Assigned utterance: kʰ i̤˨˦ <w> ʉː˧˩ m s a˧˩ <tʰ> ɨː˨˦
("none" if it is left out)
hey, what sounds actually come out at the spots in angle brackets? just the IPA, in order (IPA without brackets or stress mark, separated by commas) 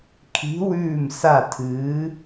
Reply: w, tʰ